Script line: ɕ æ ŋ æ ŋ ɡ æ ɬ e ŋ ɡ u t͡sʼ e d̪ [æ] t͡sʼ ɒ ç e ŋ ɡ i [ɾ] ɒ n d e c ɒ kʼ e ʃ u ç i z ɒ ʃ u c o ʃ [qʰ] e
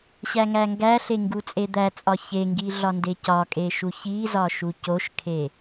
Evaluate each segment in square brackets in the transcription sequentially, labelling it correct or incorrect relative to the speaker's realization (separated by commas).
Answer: correct, incorrect, incorrect